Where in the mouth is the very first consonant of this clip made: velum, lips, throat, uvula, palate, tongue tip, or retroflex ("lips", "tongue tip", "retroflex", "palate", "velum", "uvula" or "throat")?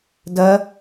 tongue tip